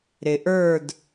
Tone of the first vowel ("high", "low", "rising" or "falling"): low